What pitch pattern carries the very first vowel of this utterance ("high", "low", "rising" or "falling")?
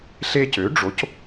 high